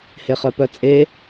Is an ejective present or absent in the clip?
present